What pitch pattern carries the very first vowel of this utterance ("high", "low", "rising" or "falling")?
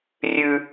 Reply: high